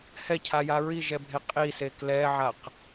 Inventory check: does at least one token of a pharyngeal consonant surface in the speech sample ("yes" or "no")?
yes